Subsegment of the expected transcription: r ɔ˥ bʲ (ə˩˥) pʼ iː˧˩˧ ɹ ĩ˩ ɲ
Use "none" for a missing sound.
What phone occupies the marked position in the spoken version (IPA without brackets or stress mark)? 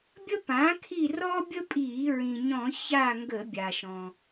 ə˥